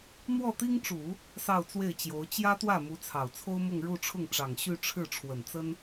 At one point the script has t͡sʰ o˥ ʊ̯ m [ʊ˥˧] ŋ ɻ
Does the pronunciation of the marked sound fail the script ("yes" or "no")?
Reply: no